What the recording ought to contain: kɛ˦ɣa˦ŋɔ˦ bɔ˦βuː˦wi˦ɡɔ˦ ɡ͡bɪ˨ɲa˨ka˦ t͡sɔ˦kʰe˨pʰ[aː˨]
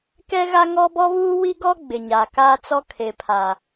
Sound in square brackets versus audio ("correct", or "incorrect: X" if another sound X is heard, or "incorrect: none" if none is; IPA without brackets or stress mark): incorrect: a˨